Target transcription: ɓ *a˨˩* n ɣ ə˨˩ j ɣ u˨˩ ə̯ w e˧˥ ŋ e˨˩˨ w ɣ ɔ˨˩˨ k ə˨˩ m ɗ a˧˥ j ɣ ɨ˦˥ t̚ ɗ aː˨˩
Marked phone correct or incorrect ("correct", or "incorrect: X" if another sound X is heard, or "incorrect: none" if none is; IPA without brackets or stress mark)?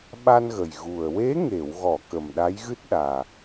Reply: incorrect: a˧